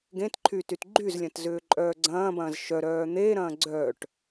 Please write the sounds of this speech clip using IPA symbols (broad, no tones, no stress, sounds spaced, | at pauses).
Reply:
ɡ ẽ t ǃʰ y t y t ɡ͡ǃ y z lʲ ɐ̃ t z ʏː ǃʼ œː ɡ͡ǀ ɐ̃ː b ɐ̃ː z ʃ œ ɾ œː n̪ eː ɾ ɐ̃ː ɡ͡ǀ œː ʈ